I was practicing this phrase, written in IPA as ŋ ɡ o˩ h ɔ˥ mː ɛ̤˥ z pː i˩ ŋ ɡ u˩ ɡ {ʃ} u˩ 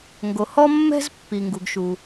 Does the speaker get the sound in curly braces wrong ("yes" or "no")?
no